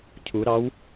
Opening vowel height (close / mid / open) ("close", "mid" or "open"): close